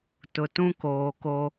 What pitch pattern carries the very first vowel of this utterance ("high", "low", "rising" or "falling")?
low